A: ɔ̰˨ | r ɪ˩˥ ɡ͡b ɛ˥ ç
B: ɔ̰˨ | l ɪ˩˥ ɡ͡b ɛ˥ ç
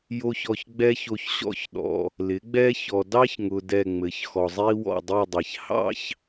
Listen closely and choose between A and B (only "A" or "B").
B